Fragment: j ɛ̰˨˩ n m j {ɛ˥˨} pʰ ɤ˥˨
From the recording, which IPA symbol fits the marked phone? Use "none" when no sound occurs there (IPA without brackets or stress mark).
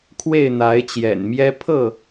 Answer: ɛ˦